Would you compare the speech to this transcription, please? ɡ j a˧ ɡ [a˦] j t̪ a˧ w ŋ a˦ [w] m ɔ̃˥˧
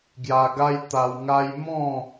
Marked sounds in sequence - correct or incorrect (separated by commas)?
correct, incorrect